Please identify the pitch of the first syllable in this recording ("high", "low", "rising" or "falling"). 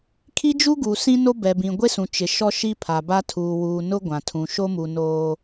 high